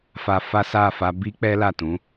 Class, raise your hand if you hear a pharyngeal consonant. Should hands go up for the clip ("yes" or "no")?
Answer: no